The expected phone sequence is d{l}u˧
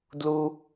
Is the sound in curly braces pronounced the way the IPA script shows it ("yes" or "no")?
yes